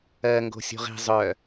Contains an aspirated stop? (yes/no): no